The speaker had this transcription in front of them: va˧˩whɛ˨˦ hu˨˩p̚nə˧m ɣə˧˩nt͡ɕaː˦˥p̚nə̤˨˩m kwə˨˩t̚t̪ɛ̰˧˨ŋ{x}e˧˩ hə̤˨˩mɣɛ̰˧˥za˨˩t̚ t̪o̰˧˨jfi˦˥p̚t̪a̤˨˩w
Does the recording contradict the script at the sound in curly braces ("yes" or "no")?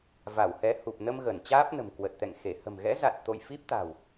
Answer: no